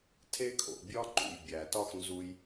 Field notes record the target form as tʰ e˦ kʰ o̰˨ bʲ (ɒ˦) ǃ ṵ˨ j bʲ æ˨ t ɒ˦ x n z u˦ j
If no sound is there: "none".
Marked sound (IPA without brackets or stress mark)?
ɒ˦